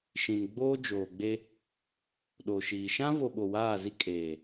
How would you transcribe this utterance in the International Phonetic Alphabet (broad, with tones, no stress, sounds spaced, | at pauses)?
ʃ ĩ˨ n ɡ͡b oː˦ d͡ʒ oː˨ ɡ͡b e˦ | ɗ o˨ ʃ iː˨ ʃ ã˦ v o˨ ɓ o˨ w aː˦˨ z i˦ kʼ eː˨